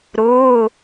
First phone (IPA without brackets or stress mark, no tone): ɾ